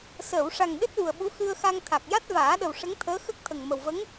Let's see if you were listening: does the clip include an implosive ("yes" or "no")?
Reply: yes